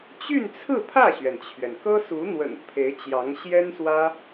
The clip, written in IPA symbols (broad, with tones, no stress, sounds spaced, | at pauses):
t͡ɕ y˥˧ n t͡sʰ ɹ̩˥˧ pʰ ä˥˩ ɕ ɥ ɛ˩ n t͡ɕʰ ɥ ɛ˩ n k ɤ˥ s u˧˥ n̪ w ə̰˨˩ n pʰ e˧˥ ɪ̯ t͡ɕ j ɑ˧˥ ŋ ɕ j ɛ˥ n s w ä˥